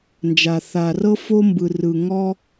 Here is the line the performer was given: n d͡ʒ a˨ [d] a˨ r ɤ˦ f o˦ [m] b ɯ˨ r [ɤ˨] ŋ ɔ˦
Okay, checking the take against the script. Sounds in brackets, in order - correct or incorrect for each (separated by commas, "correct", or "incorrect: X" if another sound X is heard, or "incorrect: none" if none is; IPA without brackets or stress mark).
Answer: incorrect: θ, correct, incorrect: ɯ˨